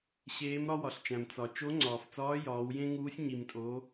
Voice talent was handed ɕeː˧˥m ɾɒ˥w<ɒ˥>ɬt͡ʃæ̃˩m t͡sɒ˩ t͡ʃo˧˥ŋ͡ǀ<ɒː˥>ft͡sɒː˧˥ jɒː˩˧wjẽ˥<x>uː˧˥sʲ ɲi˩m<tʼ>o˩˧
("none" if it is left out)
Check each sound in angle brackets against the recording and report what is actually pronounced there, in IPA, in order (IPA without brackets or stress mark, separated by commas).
ɒ˩, ɒː˩, ŋ, tʼ